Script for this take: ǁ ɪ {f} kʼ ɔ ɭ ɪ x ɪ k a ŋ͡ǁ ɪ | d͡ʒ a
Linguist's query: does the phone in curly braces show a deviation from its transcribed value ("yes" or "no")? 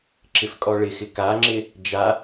no